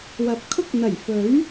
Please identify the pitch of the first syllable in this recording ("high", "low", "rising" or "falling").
low